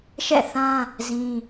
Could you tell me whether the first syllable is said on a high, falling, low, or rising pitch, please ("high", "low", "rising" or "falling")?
falling